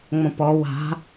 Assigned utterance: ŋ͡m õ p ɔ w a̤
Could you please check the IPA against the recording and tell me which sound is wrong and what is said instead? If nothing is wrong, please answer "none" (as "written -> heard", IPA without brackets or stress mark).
none